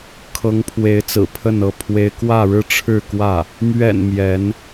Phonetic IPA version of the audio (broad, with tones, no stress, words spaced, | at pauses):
kʰɤ˧˥ŋpʰwe˧˥ɪ̯t͡sɹ̩˨˩ pʰə˥˧nɤ˥˩pʰwe˥ɪ̯ kwä˥˧ɻɻ̩˥˧ʈ͡ʂʰɻ̩˥˧kwä˥˩ | mɥɛ̰˨˩n mjɛ˧˥n